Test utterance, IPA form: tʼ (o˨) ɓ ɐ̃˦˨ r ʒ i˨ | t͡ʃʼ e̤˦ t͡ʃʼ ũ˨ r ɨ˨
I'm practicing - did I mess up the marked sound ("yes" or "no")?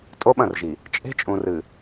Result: yes